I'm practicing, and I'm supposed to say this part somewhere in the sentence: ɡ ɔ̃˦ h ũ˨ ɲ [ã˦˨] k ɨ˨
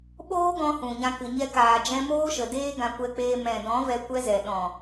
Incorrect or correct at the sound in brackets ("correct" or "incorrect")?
incorrect